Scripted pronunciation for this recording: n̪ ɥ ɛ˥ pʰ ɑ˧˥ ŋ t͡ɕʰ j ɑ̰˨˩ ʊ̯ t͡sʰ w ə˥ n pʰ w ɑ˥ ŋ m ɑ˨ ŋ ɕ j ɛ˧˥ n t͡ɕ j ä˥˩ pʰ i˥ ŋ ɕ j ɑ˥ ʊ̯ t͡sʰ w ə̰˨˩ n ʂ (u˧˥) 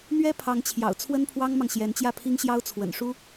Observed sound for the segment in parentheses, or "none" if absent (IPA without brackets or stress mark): u˥